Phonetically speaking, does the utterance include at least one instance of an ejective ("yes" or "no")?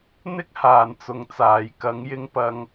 no